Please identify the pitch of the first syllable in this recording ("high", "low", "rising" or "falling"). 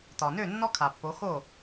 low